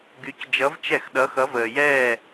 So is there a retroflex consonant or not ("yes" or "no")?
no